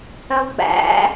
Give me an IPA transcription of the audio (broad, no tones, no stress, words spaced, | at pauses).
hœlˠɡ͡bæ̰